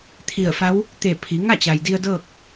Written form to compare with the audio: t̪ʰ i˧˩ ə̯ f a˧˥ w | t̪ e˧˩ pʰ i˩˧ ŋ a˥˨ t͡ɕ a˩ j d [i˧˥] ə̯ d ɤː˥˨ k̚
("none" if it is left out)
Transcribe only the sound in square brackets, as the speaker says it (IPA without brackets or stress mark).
i˧